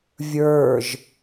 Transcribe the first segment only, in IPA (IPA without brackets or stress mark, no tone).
vʲ